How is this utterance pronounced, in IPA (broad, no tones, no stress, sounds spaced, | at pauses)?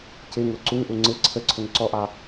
c ɪ ŋ ʊ ǀ u ŋ ʔ u ŋ͡ǀ ɪ ǀʰ ə ǀʰ ʊ ŋ ǀ ɔ ʔ ɑ